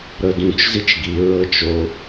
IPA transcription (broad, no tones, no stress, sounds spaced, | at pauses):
ɾ ɤ d ũ t͡ʃ z i t͡ʃ ɡ i ɹ ɤ t͡ʃ o